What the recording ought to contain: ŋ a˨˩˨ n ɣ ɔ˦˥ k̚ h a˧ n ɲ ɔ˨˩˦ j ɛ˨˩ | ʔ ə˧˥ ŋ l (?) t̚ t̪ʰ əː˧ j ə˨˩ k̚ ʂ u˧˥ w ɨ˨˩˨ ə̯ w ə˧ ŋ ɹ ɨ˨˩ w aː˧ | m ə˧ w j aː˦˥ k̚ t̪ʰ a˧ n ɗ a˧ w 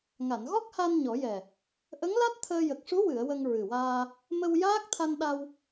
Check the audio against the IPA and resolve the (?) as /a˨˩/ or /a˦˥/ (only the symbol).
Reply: a˦˥